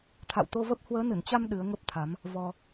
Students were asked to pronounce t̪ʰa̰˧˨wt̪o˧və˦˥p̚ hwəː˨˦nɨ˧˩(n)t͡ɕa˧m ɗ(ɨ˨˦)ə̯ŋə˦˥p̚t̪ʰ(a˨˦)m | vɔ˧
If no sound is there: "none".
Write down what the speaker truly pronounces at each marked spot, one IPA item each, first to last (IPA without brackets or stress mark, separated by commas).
n, ɨ˨˦, a˨˦